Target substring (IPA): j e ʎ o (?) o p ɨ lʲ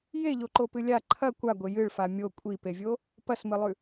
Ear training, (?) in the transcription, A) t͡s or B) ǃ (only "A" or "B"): B